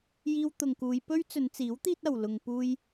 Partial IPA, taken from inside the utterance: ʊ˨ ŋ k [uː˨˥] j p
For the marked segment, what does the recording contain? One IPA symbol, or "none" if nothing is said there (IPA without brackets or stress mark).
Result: uː˨˧